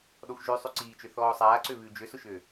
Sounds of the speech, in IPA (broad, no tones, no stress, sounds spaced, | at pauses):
ɗ ɔ xʷ ʒ ʉ sˤ ʉ ǀ iː t͡ʃ ø θ ɔː sˤ aː ǀ ø β ʉː d͡ʒ ø s ʊ ʃ ø